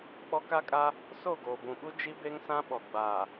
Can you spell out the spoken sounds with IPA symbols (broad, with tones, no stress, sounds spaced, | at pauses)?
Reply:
k͡p ɔ˦ k a˦ kʼ a˦ | s o˦˨ ɡ oː˨ b ũ˨ ɓ u˦ d͡ʒ i˦ b e˦ ŋ s ã˦ ɓ ɔ˨ ɡ͡b aː˨